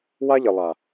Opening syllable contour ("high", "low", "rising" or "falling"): high